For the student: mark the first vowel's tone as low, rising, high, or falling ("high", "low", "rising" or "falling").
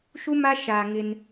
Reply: high